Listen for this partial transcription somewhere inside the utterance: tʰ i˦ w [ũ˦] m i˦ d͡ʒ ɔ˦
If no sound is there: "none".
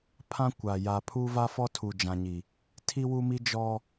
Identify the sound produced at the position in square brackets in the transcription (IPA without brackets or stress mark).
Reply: u˦